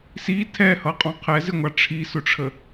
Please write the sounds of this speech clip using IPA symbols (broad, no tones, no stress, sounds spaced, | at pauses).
s i tʰ ɛ h ʌ qʼ ɔ̃ qʰ ɛ z ɪ ŋʷ ɑ ʈ͡ʂʰ i s ʊ ʈ͡ʂʰ ə